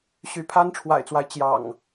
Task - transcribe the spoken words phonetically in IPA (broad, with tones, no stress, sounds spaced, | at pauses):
ɕ y˨˦ pʰ a˦ n ʈ͡ʂʰ w a̰˨˩ ɪ̯ t͡s w a˦ ɪ̯ t͡ɕ j ɑ̰˨˩ ŋ